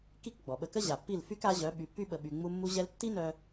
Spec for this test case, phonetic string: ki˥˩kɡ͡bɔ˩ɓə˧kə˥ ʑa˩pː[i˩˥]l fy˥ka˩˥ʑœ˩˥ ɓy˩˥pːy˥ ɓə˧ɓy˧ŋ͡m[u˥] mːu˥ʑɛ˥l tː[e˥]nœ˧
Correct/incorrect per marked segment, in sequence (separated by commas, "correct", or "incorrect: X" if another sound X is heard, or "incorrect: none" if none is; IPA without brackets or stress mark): incorrect: i˥˩, correct, incorrect: i˥